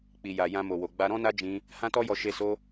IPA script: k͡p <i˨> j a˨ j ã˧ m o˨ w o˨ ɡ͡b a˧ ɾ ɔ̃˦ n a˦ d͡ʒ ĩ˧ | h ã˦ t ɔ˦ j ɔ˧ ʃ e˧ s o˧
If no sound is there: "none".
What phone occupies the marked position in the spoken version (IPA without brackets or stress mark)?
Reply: i˨